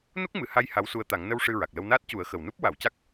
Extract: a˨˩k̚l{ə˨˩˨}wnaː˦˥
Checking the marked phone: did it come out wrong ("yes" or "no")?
yes